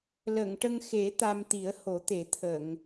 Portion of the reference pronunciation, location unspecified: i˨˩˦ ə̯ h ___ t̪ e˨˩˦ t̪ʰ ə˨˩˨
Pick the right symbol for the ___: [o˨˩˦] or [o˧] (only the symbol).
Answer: o˨˩˦